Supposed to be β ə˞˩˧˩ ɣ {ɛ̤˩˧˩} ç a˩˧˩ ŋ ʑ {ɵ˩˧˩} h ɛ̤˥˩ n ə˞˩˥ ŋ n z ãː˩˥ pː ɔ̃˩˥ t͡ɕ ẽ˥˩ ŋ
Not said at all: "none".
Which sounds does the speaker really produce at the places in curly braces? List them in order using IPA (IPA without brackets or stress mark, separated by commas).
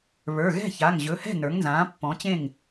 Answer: ɛ̤˥˩, ɵ˩˧˩